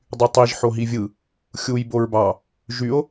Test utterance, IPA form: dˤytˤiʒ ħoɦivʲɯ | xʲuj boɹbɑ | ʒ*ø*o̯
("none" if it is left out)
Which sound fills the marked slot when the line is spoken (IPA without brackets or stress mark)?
y